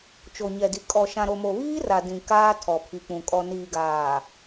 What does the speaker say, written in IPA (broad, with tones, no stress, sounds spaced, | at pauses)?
t͡ʃ o˨ ɲ ɛ˨ d i˨ kʼ ɔ˨ ʃ ã˨ ɾ o˨ m o˨ β iː˦ r a˨ d ĩ˨ k aː˦ tʰ ɔ˨ pʰ i˨ k͡p ũ˨ kʼ ɔ˨ n iː˨ ɡ aː˨